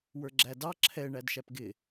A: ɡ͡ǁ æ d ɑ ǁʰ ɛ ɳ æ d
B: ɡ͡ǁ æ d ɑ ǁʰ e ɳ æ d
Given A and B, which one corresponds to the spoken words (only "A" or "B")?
A